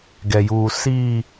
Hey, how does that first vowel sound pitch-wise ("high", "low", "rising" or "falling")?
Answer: low